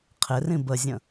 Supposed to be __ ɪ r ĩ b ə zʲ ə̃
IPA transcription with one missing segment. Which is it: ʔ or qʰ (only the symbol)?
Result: qʰ